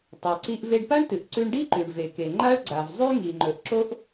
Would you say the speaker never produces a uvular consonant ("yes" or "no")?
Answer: yes